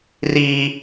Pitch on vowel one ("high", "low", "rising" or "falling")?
high